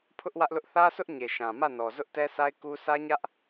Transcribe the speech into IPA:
pʰ ʊ˦ ʔ w ä˦ ʔ l ʊ˦ ʔ θ ä˦ s ʊ˦ ʔ ɲ e˨ ʃ ã˨ m ä˦˨ n ɔ˨ z ʊ˦ ʔ t ɛ˦ s a˦ ɪ̯ k u˦ sʰ ä˦ ɲ ä˦ ʔ

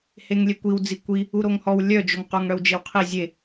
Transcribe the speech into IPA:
h e ŋ lʲ e kʷ i w d͡z i kʷ i | u ɾ o ŋ h ɔ w lʲ œ d͡ʒ o ŋ q o ŋ ɽ œ w d͡ʒ e w qʰ i zʲ e

